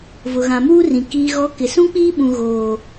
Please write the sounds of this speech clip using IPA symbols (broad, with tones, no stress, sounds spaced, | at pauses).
v ʊ˨ ɣ ã˨ m uː˦ r ĩ˨ k iː˨ ɣ ɔ˨˦ k ɪ˨ s ũ˦ k͡p iː˦ ɓ ũ˨ ɣ oː˨